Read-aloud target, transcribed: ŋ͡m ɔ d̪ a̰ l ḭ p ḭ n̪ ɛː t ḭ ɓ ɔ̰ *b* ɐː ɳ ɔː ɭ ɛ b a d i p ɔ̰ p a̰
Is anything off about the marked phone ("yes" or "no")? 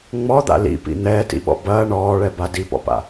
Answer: no